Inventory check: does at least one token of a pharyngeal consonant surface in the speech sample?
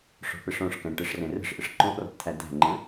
no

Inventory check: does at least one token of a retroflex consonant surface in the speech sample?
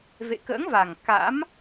no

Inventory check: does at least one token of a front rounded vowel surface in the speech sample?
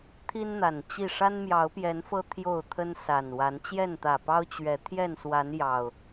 no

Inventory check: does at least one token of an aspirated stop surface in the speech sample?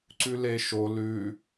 no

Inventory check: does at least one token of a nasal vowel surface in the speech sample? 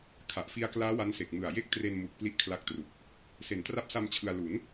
no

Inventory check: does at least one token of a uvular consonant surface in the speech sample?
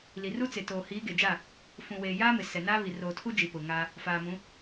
no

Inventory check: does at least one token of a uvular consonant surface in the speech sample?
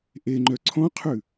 yes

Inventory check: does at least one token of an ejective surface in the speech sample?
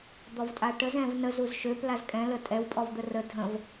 yes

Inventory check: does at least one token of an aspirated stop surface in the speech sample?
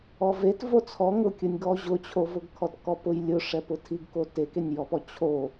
yes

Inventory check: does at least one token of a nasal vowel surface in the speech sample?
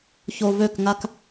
no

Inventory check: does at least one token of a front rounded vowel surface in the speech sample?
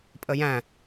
no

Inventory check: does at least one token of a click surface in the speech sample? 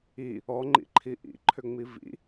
yes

